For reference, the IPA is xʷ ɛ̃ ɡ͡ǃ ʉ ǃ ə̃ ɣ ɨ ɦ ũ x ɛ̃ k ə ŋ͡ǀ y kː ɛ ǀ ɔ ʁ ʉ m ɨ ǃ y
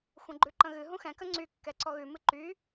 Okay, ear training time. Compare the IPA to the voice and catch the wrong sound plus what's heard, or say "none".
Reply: ʁ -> ɣ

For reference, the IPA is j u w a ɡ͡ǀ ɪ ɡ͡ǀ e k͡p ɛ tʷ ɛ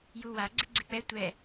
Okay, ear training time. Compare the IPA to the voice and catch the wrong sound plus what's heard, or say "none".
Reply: none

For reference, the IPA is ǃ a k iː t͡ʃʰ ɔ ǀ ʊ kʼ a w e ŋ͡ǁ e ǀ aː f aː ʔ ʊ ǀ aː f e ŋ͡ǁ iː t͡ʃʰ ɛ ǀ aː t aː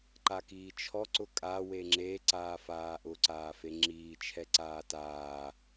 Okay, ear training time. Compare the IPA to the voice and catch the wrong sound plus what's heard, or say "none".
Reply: none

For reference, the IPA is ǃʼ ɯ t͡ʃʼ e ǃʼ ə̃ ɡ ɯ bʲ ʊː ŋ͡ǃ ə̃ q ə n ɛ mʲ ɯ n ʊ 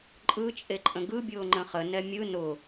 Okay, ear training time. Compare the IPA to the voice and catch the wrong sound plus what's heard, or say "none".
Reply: q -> χ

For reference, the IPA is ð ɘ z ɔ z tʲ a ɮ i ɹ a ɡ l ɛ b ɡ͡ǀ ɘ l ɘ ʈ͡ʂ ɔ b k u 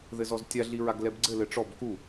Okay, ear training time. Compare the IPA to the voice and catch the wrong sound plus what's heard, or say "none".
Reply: none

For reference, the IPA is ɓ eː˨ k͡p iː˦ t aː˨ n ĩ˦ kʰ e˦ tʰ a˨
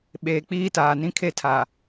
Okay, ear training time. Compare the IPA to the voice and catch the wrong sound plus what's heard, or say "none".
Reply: none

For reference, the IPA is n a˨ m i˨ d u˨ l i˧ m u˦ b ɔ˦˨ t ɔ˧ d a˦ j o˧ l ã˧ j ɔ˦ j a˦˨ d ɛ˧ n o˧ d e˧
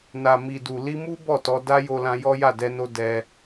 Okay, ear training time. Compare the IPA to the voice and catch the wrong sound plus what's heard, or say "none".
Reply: e˧ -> ɛ˧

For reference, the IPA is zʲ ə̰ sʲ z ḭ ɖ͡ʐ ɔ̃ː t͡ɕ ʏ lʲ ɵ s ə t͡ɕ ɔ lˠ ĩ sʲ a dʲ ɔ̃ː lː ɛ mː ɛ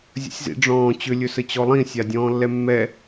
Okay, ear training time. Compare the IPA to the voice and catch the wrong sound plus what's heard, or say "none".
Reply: none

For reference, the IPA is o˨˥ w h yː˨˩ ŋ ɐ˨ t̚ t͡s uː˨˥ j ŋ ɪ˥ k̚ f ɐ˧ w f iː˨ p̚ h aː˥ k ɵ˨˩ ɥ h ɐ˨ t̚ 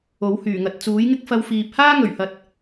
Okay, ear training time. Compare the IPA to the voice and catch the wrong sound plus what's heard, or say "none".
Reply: k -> ŋ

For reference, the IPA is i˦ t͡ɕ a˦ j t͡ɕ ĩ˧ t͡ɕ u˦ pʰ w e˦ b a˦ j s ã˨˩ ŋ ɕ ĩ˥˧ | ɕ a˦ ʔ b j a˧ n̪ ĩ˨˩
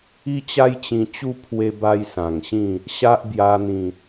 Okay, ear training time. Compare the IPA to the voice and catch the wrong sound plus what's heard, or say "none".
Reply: none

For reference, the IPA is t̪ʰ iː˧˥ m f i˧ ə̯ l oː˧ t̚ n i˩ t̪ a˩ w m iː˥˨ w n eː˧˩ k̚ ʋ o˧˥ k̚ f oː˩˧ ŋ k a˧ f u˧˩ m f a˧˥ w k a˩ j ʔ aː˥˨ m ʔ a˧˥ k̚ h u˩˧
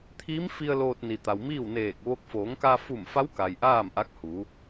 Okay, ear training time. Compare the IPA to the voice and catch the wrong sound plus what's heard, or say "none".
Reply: none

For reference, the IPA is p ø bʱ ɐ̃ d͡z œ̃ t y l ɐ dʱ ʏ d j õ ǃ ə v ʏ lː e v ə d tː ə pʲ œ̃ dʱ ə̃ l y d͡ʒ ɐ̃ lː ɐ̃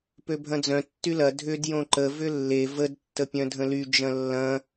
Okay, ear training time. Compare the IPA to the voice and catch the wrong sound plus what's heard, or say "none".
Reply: t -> tː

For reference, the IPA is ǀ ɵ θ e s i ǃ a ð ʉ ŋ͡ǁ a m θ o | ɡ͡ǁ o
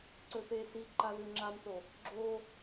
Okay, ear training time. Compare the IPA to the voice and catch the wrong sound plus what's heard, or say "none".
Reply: none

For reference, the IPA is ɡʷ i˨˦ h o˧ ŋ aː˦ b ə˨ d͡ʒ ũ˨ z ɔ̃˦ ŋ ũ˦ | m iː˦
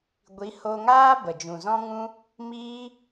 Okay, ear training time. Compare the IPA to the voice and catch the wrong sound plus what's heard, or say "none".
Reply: none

